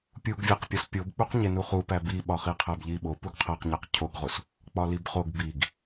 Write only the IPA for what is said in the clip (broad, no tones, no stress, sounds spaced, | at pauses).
pʲ u ɡ vʲ æ q pʲ ɒ s pʲ o b k͡p u q ɲ e n u χ u p æ b i ɓ ɒ χ i qʰ æ b ʎ i ɓ o p u ɡ qʰ æ q ɲ æ q cʰ o ɡ ʁ o s | k͡p ɒ l i b χ o ɡ b i ɡ